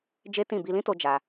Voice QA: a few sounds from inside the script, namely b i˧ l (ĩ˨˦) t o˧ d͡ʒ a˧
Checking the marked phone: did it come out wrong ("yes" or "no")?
yes